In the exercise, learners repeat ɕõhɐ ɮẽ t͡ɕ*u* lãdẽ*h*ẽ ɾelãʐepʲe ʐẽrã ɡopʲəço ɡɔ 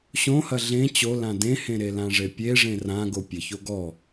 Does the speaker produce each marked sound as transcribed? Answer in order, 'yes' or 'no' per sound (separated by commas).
no, yes